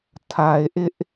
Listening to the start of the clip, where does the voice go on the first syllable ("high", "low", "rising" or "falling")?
low